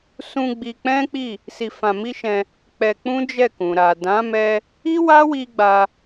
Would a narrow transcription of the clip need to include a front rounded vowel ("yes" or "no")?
no